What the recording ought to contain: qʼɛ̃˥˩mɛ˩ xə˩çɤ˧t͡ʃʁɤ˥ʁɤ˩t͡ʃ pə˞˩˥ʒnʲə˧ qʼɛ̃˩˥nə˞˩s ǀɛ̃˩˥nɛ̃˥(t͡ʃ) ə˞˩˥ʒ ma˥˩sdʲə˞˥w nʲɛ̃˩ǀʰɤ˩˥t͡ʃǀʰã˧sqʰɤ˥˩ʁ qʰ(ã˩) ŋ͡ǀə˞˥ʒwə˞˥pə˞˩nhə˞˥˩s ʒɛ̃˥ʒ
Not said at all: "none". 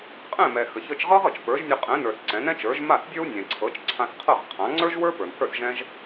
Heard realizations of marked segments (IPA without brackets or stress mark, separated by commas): t͡ʃ, ã˩˥